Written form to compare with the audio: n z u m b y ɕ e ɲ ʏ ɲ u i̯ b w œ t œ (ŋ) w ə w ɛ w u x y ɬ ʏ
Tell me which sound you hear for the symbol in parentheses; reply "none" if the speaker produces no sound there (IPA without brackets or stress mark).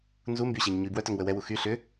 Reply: ŋ